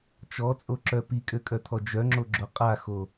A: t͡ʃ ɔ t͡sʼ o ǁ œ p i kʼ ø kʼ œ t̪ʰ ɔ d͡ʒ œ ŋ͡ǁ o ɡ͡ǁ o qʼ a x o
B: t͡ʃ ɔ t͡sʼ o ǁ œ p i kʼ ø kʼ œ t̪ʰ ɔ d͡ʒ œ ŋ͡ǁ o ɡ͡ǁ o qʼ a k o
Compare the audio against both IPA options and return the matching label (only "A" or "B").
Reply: A